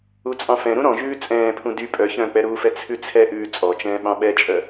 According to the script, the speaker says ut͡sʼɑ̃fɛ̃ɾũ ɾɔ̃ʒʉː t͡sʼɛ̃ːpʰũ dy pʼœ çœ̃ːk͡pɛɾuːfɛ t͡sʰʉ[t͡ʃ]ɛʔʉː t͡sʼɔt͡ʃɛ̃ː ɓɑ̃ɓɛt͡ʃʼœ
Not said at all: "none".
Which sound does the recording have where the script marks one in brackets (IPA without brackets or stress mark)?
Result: t͡sʰ